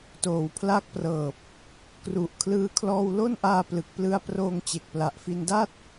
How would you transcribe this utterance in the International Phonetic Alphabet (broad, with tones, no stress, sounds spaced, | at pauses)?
t oː˨˩ w pʰ l a˦˥ k̚ p r ɤː˨˩ p̚ | k r u˨˩ ʔ kʰ l ɯː˧ kʰ l ɔː˧ w l o˥˩ n ʔ aː˧ p l ɯ˨˩ k̚ p l ɯ˧ a̯ p r oː˧ ŋ t͡ɕ e˨˩ k̚ p l a˨˩ ʔ f i˧ n d a˥˩ t̚